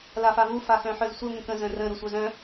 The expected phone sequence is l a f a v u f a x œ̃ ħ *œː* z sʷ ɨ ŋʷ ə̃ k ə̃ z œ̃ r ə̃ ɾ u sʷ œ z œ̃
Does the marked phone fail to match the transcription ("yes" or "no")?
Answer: yes